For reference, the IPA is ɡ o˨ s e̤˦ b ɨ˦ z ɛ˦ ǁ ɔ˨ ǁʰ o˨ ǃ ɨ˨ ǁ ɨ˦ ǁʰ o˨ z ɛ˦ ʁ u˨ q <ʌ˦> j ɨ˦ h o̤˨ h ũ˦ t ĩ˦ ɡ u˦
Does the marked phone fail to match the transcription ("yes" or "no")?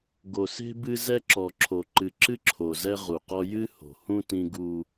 yes